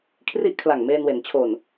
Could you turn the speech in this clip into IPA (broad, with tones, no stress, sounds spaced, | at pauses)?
kʰ r i˥˩ ʔ kʰ l a˨˩ ŋ m eː˧ n w e˩˦ n t͡ɕʰ o˨˩ n